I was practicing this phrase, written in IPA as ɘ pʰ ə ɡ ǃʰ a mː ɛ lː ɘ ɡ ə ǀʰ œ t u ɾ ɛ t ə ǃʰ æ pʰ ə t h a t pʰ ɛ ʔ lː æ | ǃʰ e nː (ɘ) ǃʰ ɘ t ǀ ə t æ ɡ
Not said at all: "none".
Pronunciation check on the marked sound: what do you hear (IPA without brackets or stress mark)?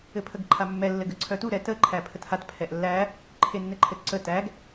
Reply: ɘ